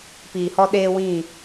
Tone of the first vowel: low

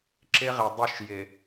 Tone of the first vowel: high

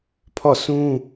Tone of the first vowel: falling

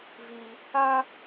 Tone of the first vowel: high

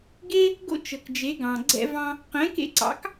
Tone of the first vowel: high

